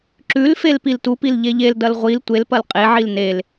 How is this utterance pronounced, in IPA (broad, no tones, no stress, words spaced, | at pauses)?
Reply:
ǁʉlfel piltupil ʎeʎeldɐl ʁʷil tʷelpɐl qʼeʕil nel